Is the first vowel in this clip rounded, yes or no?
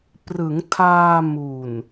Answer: no